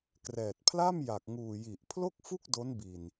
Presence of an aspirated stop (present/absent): present